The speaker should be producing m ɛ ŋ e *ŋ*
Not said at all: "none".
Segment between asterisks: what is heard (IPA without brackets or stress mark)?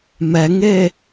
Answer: none